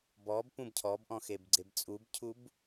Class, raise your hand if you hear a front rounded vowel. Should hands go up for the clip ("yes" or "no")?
no